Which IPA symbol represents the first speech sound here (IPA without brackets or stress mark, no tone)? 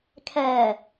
kʰ